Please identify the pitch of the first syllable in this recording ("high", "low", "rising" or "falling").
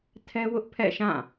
high